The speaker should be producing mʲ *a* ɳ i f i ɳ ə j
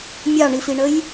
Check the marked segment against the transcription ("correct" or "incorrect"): incorrect